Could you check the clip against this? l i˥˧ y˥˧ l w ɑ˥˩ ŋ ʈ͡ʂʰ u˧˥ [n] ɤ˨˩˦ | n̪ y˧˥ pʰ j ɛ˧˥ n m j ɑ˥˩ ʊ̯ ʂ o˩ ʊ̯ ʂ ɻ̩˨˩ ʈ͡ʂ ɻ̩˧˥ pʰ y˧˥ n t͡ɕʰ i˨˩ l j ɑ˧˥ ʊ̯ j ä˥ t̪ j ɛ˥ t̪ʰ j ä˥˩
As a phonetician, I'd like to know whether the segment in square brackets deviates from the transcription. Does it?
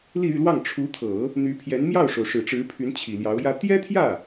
yes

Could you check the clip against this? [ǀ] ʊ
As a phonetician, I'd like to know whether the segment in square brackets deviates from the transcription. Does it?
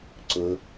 no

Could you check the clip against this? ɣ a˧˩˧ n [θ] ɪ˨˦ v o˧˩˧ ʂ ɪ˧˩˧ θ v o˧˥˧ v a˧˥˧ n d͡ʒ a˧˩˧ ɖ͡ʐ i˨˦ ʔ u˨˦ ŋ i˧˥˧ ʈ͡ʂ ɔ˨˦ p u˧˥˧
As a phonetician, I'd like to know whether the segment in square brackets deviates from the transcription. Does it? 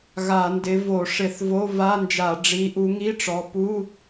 yes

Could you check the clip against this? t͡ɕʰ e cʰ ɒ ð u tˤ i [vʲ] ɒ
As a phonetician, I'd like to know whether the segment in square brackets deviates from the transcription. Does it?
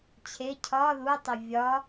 no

